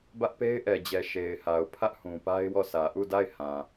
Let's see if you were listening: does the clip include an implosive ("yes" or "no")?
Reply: no